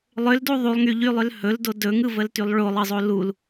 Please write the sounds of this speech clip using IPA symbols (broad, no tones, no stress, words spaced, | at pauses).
lˠʏldu ðˤulˠŋyʎylˠʏl hɵldo dɵŋɯvəltylˠ ɭolˠɯzˤo lul